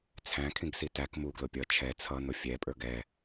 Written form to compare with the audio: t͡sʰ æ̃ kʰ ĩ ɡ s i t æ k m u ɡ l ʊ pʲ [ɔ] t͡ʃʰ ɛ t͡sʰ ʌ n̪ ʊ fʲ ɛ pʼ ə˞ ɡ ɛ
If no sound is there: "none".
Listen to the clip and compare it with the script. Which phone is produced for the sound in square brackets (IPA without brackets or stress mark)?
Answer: ʌ